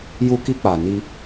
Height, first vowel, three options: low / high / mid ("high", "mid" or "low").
high